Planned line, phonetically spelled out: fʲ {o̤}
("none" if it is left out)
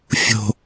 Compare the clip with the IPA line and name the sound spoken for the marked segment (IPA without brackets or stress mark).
o̤